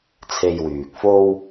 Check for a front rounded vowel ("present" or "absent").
present